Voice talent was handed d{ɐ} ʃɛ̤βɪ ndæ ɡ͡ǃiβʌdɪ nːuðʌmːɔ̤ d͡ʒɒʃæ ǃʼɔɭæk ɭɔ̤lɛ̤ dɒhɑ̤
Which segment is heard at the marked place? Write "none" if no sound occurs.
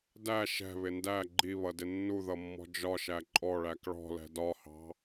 æ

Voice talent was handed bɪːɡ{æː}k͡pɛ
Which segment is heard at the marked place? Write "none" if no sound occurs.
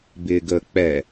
əː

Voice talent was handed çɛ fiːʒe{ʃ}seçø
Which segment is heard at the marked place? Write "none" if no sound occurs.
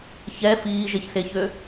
ç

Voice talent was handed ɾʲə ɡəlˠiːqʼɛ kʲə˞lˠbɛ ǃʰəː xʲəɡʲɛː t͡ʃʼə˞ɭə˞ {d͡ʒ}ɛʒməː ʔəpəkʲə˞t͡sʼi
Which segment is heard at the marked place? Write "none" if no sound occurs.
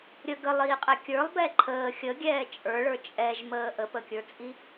t͡ʃʼ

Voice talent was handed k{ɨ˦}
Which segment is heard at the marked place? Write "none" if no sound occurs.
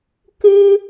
ɨ˦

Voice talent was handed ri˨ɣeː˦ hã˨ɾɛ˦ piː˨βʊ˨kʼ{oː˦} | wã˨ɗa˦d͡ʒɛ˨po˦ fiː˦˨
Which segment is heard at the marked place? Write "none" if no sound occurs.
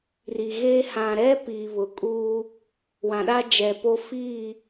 uː˦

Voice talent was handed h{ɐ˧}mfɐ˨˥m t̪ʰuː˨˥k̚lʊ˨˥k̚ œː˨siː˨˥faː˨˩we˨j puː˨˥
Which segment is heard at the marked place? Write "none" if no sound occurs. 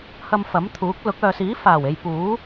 ɐ˧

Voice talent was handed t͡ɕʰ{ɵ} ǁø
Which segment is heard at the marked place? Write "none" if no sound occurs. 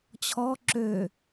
ɔ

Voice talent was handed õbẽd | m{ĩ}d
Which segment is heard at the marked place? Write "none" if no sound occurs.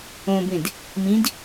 ĩ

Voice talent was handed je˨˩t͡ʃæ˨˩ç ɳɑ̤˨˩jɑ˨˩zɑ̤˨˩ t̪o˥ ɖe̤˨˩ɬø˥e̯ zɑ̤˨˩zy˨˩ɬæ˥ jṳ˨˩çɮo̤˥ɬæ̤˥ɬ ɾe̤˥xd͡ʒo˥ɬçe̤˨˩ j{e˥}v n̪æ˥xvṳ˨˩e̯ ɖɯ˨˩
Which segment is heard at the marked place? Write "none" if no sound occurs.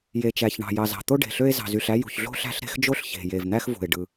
e˨˩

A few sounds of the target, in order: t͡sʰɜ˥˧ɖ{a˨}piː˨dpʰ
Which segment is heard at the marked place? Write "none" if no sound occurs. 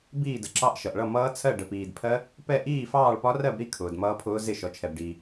ə˨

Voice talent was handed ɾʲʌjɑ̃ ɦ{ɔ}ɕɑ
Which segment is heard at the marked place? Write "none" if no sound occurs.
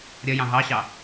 ɑ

